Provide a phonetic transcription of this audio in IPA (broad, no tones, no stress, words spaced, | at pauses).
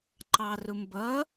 ǃɑrʊmbʌ